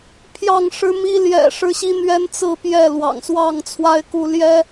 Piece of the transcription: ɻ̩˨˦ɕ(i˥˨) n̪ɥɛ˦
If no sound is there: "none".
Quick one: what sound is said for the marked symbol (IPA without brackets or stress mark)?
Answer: i˨˦